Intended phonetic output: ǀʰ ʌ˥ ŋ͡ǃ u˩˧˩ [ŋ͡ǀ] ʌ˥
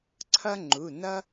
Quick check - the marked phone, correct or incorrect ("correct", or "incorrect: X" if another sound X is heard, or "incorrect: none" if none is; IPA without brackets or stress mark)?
incorrect: n